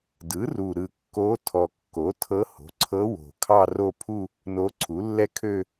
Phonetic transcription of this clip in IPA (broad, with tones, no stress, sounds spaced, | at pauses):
d ɯ˩˥ r u˨˩ ɾ ɯ˨˩ kː o˧˥ tʰ ɔ˨˩ kː o˩˥ tʰ ɤ˧˥ h o̤˩˥ ǀʰ ɤ˧˥ w o̤˨˩ kʰ ɑ˥˧ r o˥˧ pʰ u˥˧ | n o˧˥ ǀʰ u˩˥ lː ɛ˥˧ kʰ ø˥˧